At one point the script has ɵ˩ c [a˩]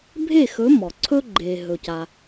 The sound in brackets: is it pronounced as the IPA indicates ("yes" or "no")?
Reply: yes